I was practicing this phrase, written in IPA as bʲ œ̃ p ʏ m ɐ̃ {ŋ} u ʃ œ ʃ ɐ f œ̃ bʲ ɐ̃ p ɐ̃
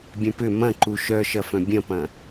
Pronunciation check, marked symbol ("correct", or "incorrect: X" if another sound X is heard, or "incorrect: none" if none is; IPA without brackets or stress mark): incorrect: ǃ